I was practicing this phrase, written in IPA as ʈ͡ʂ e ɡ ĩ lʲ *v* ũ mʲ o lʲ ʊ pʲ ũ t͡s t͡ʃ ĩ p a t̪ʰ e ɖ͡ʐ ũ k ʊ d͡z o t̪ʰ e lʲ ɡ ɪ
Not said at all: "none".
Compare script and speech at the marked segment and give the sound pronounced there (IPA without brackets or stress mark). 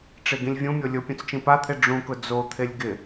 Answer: vʲ